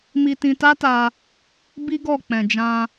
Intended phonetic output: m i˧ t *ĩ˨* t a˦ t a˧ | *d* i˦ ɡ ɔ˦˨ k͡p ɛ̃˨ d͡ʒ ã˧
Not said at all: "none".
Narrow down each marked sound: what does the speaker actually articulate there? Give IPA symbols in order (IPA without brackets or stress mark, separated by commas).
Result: ĩ˧, b